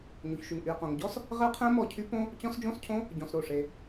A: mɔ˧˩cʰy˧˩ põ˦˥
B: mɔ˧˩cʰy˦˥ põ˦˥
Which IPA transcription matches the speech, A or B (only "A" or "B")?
B